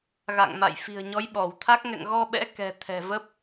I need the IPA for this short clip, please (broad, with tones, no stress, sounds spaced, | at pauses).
ɣ a̰˧˨ ŋ m a̰˧˨ j f i̤˨˩ ə̯ ɲ ɔ˨˦ j ɓ ɔ˧˩ w t̪ʰ a˦˥ k̚ ŋ ɛ̰˧˨ ŋ ɣ ɔ˧ ɓ ɛ̰˧˥ k ɛ̤˨˩ t̪ʰ ɛ̤˨˩ v ə˦˥ p̚